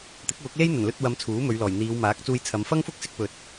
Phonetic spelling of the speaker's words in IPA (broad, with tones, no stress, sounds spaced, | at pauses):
t̪ ɪ˨˥ k̚ w ʊ˨˥ k̚ l e˥ j n̪ ɐ˨˩ n l ɵ˧ t̚ w ɐ˨˧ m t͡sʰ uː˨˥ m ɵ˨˧ ɥ l ɔː˨˩ j n̪ iː˨˧ w m aː˨˥ k̚ t͡s uː˧ j t͡sʰ ɐ˨˧ m f ɐ˥ ŋ f ʊ˥ k̚ s ɪ˧ k̚ p ɵ˨ t̚